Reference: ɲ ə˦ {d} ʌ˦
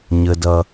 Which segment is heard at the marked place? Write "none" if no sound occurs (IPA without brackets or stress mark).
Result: d